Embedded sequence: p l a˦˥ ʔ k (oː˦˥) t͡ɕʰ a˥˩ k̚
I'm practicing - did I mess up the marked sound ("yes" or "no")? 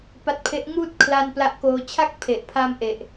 yes